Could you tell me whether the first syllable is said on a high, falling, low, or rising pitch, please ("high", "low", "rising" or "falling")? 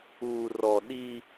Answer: low